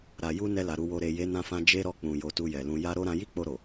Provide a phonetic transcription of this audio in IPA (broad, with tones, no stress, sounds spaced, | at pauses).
ɾ a˨ j u˧ n ɛ˧ l a˨ ɾ u˨ w o˨ ɾ e˨ j e˨˦ n ã˧ f ã˧ d͡ʒ e˧ ɾ ɔ˧ k͡p ũ˨ j o˧ t u˧ j ɛ˨ l ũ˧ j a˦ ɾ o˦ ɾ ã˧ j i˦ k͡p o˧ ɾ o˨